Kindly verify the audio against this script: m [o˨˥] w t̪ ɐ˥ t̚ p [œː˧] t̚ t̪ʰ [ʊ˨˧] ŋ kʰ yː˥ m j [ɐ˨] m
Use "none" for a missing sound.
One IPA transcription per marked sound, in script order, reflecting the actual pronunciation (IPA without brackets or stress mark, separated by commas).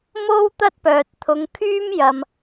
o˥, œː˨, ʊ˨˧, ɐ˨